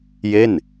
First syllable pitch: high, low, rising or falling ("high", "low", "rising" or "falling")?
falling